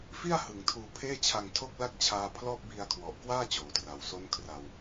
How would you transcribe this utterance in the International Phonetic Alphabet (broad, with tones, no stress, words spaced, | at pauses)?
fi˥˩a̯ hɯ˨˩ŋtʰuː˧pʰeː˥˩t͡ɕʰa˧ŋ tʰo˥˩k̚la˥˩k̚ t͡ɕʰaː˧pʰlɔː˥˩p̚ bi˧a̯kʰwɔ˨˩ʔkwaː˥˩ t͡ɕoː˨˩tra˨˩w so˦˥n kʰra˧w